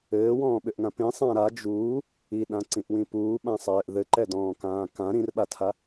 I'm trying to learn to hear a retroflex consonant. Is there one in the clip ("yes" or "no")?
no